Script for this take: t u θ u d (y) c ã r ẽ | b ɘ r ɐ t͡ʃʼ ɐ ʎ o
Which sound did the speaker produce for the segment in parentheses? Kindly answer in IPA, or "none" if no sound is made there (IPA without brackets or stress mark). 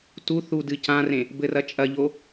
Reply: ɨ